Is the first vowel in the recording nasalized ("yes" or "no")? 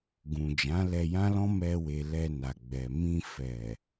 yes